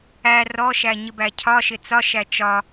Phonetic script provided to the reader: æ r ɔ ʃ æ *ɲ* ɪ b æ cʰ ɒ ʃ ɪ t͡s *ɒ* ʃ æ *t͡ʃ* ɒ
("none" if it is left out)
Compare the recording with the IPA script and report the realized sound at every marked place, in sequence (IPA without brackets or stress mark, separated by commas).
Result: ɲ, ɒ, t͡ʃ